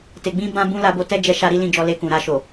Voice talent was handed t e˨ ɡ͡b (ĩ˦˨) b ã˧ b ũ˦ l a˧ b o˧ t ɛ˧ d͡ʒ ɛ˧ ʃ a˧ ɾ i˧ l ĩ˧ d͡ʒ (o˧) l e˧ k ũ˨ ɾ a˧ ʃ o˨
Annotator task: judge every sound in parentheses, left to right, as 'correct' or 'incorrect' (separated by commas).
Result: incorrect, incorrect